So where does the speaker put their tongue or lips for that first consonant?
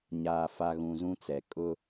palate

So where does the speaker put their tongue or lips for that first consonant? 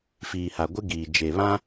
lips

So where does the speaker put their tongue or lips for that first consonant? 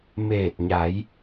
lips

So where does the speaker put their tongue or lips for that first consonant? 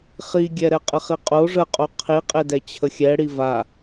uvula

